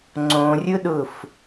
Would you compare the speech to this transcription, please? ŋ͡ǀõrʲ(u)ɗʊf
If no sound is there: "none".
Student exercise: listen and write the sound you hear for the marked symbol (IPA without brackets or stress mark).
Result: ʊ